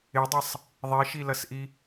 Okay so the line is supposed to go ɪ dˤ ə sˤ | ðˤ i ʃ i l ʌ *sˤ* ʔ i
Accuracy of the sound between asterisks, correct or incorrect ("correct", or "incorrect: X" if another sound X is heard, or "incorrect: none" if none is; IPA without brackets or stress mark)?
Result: incorrect: s